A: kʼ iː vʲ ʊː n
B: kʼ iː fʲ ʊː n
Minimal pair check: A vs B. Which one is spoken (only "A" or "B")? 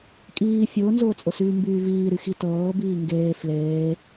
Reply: B